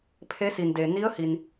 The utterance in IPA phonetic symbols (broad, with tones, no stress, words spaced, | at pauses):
pʰe˧˥si˩nde˩ ni˧˥ə̯hi˩n